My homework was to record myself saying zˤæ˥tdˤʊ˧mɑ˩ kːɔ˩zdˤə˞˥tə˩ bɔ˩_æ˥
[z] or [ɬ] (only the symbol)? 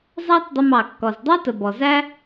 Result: z